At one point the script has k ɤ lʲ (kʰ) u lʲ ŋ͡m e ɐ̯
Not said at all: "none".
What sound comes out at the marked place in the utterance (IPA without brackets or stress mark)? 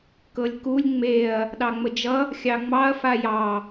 k